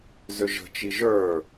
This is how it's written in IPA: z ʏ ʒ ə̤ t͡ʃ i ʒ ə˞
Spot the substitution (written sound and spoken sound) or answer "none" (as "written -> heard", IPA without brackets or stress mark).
none